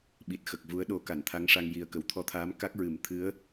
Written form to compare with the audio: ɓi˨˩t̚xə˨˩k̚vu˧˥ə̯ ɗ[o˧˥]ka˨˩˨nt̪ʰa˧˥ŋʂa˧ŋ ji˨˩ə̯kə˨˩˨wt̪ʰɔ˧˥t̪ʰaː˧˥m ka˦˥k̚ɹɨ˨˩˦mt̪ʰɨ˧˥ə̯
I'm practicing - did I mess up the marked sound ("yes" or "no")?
no